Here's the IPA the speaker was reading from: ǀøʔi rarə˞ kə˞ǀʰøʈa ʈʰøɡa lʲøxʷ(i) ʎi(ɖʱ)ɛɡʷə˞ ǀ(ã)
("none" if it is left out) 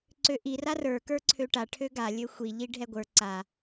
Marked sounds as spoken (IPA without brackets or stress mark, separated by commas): i, ɖʱ, a